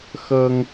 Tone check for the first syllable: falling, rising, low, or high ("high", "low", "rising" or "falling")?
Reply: high